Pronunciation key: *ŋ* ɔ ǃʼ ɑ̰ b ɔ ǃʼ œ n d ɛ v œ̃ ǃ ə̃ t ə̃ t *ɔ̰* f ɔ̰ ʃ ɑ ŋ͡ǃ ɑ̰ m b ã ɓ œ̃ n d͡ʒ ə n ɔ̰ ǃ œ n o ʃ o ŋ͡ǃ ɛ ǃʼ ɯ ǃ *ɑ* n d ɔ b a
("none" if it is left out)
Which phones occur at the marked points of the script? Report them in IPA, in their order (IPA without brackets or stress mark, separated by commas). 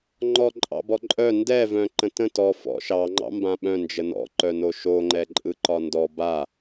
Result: ŋ͡ǃ, ɔ, ɒ